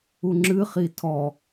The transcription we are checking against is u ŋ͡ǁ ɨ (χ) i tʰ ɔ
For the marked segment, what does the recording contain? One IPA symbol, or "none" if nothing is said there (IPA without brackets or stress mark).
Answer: χ